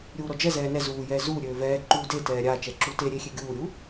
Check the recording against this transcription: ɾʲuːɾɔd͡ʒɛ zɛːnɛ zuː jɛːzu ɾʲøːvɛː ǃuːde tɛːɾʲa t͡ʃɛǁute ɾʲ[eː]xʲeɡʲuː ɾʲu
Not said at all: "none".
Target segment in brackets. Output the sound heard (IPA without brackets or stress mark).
e